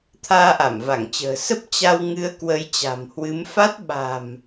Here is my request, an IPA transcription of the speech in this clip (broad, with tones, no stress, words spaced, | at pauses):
t̪ʰaː˧ʔa˧˩mva˧˩ŋt͡ɕə̤ː˨˩ sə˦˥p̚ t͡ɕa˧wŋɨ˨˦ə̯ kwə˨˦jt͡ɕa̤˨˩mhwɨ˨˦m fa˦˥t̚ ɓa̤˨˩m